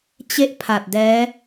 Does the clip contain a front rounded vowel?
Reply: no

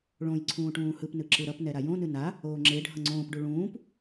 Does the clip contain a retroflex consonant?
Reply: yes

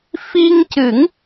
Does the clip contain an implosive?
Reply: no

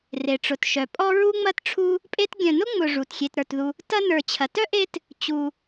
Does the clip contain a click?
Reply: no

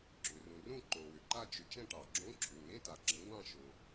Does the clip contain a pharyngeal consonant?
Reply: no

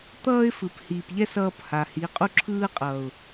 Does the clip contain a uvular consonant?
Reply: yes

